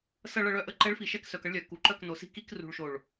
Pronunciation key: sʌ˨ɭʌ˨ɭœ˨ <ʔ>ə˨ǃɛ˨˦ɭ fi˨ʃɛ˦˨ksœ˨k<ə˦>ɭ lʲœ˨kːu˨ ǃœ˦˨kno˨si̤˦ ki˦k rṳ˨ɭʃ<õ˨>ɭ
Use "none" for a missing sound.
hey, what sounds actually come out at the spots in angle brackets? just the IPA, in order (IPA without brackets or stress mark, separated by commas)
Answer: ʔ, ʌ˦, o˨